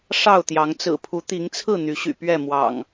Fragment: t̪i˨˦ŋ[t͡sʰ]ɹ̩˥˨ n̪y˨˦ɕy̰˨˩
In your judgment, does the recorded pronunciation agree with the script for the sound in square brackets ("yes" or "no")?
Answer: yes